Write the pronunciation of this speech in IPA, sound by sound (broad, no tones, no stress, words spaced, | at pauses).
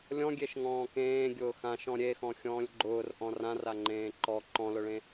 lʲɔ̃ɡʲeʃ ŋɔ̃ːkẽːɡʲʊː xãʃɔ̃ ɾʲexɔ̃ xʲɔ̃ːlʲɡ͡ǃʊːr ʔɔ̃rãra ŋ͡ǃẽːǃɔ ǃɔ̃lʊɭẽ